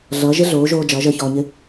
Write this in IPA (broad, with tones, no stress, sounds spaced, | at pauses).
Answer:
ɮ ʌː˨˦ ʒ ɪ˦ ɮ oː˨˦ ʒ oː˧ d͡ʒ ʌː˨˦ ʒ əː˧ ç ɔː˧ ɲ ɪ˦